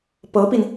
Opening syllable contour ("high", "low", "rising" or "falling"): rising